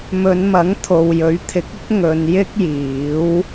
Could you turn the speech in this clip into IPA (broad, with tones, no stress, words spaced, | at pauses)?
mɵ˨˧nmɐ˨˥ŋ t̪ʰo˨wjɵ˨˥ɥt̪ʰɪ˨˥k̚ɪ˥k̚ ŋɵ˨˧njɪ˥k̚jiː˨˥w